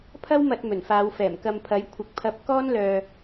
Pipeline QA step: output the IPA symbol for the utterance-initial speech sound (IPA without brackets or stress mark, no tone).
pʰ